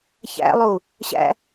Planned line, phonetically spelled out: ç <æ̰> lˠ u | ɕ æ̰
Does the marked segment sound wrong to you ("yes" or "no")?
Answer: no